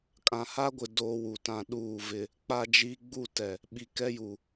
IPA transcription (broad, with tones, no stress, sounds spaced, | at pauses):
kʼ ã˨ h a˦ ɡʷ ɪ˨ d oː˦ w u˨ t ã˦˨ ɗ uː˦˨ v ɪ˦ | k͡p a˦ d͡ʒ i˦ ɡ͡b u˦˨ t ɛ˨ | ɓ i˨ k ɛ˦ j u˨